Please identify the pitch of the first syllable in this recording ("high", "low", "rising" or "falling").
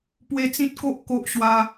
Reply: high